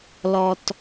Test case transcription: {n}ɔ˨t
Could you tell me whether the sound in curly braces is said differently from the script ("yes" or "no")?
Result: yes